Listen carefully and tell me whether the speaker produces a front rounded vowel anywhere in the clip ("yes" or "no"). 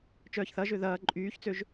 yes